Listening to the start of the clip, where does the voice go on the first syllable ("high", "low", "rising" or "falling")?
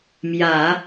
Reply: low